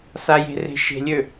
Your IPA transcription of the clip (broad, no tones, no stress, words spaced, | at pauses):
saje̤re̤ ʃe̤lʲø